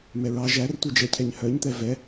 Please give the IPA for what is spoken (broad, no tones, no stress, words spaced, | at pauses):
mɛɹɑ ʒærtʷid͡ʒɛcʰɛɲ hœɲt̪ɛ vɛ